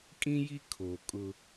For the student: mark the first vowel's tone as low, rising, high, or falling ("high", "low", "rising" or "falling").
high